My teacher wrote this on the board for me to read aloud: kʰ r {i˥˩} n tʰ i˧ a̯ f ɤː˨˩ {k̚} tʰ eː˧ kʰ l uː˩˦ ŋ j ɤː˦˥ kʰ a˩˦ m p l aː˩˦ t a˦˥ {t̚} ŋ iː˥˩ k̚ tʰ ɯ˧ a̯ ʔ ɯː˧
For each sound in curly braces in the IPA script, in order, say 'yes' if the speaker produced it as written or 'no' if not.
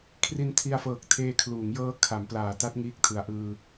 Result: no, yes, yes

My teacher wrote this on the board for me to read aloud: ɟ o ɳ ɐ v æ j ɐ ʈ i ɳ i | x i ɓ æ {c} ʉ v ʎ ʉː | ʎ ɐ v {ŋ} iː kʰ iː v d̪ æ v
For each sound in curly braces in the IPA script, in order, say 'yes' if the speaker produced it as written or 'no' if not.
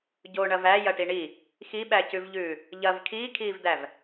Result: yes, no

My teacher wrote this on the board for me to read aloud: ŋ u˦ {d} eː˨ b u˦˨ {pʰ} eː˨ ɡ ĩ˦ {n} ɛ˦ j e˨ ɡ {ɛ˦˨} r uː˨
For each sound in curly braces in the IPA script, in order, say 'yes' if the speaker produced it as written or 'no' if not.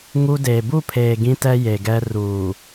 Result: yes, yes, no, no

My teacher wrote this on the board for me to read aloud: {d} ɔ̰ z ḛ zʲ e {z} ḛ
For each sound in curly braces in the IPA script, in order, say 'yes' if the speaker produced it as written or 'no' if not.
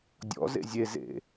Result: no, yes

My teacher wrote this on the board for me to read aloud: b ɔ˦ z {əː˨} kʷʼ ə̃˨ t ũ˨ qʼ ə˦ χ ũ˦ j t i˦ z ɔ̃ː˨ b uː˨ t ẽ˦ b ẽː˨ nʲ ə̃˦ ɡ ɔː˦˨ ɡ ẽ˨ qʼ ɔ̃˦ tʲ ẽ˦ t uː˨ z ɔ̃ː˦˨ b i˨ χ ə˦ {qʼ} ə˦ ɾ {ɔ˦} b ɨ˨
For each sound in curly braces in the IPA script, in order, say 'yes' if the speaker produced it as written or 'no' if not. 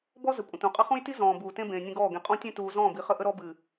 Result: no, no, yes

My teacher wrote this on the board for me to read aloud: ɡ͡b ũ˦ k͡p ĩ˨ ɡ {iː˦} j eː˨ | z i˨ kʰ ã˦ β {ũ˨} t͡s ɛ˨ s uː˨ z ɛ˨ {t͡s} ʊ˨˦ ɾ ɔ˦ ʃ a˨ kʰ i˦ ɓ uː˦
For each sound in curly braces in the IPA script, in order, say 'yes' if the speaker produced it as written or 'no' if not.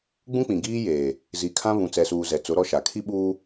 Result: yes, yes, yes

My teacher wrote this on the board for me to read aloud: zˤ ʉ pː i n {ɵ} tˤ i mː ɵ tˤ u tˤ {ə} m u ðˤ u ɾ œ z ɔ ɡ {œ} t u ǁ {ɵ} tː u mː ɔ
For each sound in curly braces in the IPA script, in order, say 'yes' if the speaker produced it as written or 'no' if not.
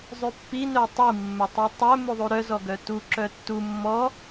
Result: no, no, yes, no

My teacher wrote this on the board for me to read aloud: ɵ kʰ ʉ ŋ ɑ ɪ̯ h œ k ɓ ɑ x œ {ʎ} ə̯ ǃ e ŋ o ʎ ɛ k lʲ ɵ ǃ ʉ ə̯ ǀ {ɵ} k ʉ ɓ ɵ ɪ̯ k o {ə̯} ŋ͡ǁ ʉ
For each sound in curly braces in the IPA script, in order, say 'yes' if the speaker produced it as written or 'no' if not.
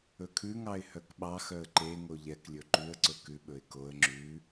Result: no, yes, yes

